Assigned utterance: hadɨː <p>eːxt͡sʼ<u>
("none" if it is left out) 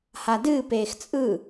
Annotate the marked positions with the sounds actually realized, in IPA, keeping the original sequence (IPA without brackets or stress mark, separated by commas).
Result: p, ɯ